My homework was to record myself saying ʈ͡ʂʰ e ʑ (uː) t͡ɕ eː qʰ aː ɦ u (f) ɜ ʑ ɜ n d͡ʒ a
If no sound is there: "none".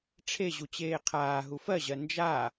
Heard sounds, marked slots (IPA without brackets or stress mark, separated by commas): u, f